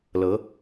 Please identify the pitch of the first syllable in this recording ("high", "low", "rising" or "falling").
rising